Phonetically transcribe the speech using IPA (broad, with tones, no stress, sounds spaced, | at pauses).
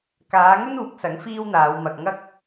k aː˨˧ ŋ ɵ˥ n uː˨˥ k̚ s ɐ˨˥ ŋ f iː˥ w n̪ aː˨˧ w m ɐ˧ k̚ ŋ ɐ˥ k̚